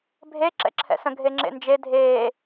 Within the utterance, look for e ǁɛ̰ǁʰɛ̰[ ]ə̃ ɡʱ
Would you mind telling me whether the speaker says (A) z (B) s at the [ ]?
B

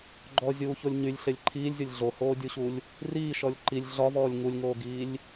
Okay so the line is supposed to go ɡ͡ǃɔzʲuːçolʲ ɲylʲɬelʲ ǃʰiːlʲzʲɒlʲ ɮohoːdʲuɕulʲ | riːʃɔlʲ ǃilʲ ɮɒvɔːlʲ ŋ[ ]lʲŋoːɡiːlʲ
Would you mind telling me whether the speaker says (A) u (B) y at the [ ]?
A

